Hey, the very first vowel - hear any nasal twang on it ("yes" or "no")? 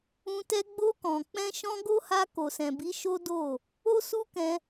yes